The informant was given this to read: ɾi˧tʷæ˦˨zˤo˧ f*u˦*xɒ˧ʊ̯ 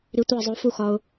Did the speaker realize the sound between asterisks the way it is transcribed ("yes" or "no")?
yes